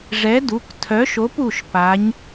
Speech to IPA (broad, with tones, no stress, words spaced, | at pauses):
ʐɛ˨˥du˩˧˩ktʰœ˨˥ʃo˨˥p u˩˧˩ʃ pa˨˥ɲ